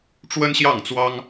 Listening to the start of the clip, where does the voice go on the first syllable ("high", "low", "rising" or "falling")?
high